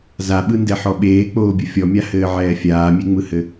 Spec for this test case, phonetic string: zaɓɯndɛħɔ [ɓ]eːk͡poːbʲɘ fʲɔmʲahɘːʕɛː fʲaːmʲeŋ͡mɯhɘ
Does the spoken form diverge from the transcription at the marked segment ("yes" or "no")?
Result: no